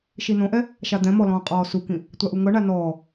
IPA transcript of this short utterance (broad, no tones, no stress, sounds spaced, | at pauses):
ʃ i n õ ʔ ɛ | ʃ a d̪ ɛ̃ m ɔ l ɔ̃ː qʼ ɔː s u k ĩ | tʷ a ʔ u ŋ ɤ ɳ a n ɔː